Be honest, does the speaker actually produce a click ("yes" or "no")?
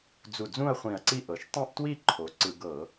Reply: yes